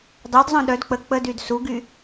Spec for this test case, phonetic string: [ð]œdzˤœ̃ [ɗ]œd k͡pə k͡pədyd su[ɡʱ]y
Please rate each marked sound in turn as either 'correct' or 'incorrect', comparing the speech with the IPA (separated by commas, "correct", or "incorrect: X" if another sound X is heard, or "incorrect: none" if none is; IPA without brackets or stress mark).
incorrect: dˤ, correct, incorrect: ɡ